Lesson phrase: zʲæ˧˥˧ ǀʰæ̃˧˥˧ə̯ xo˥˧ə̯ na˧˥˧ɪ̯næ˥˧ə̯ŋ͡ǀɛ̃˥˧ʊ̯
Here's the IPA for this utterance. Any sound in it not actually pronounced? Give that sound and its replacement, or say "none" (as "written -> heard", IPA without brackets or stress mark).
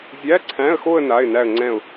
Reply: none